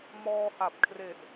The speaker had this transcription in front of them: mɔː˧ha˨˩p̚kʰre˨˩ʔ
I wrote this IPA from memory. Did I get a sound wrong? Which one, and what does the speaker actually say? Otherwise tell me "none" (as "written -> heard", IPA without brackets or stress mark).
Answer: none